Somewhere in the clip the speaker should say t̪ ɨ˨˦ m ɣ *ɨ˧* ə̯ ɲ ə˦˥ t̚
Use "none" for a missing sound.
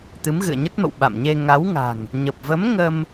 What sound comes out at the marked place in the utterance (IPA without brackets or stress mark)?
ɨ̰˧˨